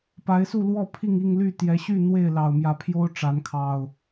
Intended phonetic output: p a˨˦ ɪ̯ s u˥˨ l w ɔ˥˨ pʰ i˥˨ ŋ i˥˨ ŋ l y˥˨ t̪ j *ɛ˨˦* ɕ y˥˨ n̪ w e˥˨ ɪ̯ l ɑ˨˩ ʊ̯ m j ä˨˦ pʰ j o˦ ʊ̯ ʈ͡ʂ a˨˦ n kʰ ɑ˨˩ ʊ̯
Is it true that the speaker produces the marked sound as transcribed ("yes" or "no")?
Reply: yes